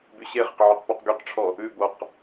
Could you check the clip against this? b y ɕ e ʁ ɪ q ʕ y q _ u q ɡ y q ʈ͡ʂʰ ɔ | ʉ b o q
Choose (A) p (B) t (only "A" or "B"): A